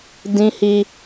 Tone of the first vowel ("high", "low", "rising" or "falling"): high